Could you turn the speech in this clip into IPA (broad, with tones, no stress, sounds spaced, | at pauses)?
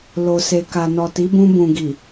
l o˨ s e˨ k a˨ n ɔ˨ t i˨˦ b ũ˧ b ũ˨ ɡ i˨